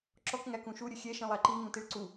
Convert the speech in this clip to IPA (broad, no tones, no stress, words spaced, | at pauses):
ǁɔkŋæ kũʃu ɾʲɵxʲɛ ʃĩlˠæǃi ŋũtiɭǀu